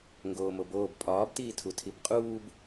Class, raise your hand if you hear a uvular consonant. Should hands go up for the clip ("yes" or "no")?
yes